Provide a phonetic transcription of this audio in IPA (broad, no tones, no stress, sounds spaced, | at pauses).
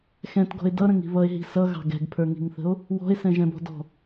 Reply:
x ɛ̃ t ɡ ɔ̤ e̯ d ʌ ɾ ə̃ ŋ i̤ β ʌ e̯ ɦ i̤ s ʌ ɣ ɑ̤ ɡ ɛ̤ ɡ pʰ ə˞ ŋ i̤ ŋ θ ə̤ o̯ | w ɔ̤ e̯ s ɛ̃ ʒ ɛ̃ b ɔ̤ d ɔ̤